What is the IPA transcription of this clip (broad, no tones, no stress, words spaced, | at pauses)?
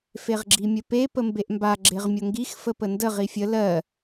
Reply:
feʁɡ͡ǁimʲəpe pəmbeʔmba ɡ͡ǁeʁmʲoŋɡix fəpəndə ʁifʲə lɜ